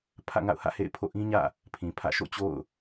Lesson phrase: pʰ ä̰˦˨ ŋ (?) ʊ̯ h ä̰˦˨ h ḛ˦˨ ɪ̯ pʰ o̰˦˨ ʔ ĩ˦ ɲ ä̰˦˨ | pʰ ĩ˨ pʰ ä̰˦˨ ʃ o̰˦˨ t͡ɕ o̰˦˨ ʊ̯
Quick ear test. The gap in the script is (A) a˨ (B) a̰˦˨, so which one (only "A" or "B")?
B